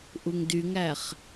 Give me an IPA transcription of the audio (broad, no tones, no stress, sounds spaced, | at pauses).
ʔ u ŋ d y ŋ æ χ